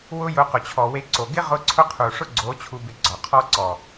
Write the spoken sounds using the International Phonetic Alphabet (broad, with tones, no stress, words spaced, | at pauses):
wʊ˦jʊ˧ qʊ˨t͡ɕʰɔ˨we˧ǀo˨ ɡɪ˦ ʁʊ˦ǀʰʊ˦ qʰu˨ʂʊ˦ɡ͡ǀo˨˦ t͡ɕʰu˧bɪ˧ɡ͡ǀɔ˨qʰɔ˦ ǀɔ˨